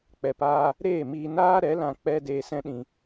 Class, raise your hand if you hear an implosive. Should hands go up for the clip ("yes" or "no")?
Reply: yes